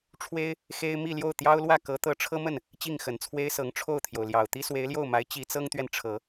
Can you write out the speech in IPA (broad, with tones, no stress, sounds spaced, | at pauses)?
ʈ͡ʂʰ w e˥ ɪ̯ | x e˥ ɪ̯ m i˥˧ l j o˥˩ ʊ̯ t̪ j ɑ˥ ʊ̯ l w ä˥˩ k ɤ˧˥ t̪ ɤ˧˥ ʈ͡ʂʰ ɤ˥ m ə˥˩ n | t͡ɕ i˥˩ ŋ x ə˨˩ n t͡sʰ w e˥ ɪ̯ s ɤ˧˥ ŋ ʈ͡ʂʰ o˥˩ ʊ̯ t̪ʰ j o˩ ʊ̯ l j ɑ˨˩ ʊ̯ t̪ i˥ s w e˧˥ ɪ̯ l j o˥˩ ʊ̯ m a˧˥ ɪ̯ t͡ɕ i˧˥ t͡s ɤ˥ ŋ t̪ ɥ ɛ˨ n ʈ͡ʂʰ ɤ˨˩˦